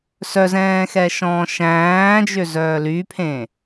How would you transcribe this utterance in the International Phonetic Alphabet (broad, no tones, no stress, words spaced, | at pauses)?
sœzɛ̃ːxɛʃɔ̃ː ʃæ̃ːd͡ʒøzœː lypʰẽ